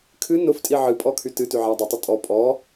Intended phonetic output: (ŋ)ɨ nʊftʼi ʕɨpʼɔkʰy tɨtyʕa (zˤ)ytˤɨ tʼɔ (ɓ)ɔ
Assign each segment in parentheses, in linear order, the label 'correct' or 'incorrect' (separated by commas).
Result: incorrect, incorrect, incorrect